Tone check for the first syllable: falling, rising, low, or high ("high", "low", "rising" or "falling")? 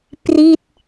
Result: falling